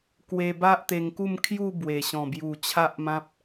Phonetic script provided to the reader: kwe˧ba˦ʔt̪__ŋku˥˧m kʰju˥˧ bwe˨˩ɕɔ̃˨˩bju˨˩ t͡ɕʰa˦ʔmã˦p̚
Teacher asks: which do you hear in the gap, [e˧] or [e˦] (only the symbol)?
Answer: e˧